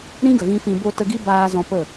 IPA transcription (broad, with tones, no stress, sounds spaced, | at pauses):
ɾ ĩ˦ ɡ ə˨ ɣ ĩ˧ f ĩ˧ b o˧ t ə˧ ɡ i˦ b aː˧ z ɔ̃˧ p ə˦˨